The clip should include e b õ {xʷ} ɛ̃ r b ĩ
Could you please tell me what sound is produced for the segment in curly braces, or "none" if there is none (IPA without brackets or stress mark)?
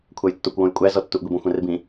xʷ